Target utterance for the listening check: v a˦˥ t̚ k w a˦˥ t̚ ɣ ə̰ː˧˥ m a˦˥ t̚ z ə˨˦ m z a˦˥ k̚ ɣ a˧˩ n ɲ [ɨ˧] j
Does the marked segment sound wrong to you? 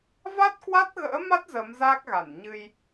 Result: no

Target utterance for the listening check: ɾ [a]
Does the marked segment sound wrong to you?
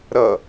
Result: yes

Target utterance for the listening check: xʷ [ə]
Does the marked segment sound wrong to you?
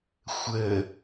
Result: no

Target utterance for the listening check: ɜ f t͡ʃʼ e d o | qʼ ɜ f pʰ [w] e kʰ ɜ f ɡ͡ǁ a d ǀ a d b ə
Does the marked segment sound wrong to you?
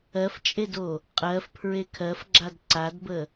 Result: yes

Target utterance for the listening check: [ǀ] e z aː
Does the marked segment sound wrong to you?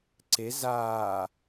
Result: no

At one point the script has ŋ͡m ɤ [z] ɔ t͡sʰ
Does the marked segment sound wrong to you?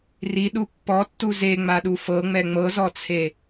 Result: no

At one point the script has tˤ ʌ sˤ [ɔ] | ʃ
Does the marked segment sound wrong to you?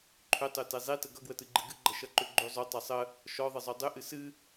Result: yes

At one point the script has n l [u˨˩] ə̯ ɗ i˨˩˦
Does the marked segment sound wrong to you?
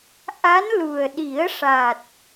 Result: no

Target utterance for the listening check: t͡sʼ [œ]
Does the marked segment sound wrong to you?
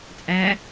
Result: yes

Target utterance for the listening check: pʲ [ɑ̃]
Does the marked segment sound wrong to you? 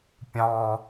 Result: no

